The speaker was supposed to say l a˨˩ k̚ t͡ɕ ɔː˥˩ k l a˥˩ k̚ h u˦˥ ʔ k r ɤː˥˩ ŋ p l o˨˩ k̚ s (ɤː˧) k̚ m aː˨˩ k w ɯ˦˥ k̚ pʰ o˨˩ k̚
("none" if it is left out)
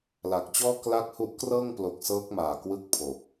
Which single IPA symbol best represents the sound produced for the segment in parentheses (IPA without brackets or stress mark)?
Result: ɤː˦˥